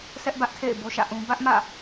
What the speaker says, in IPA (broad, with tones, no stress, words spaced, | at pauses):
sɛ˦ʔbä˦ʔtʰḛ˦˨ɪ̯ bo˦ʃä̰˦˨ʔũ˦ bä˦ʔmä̰˦˨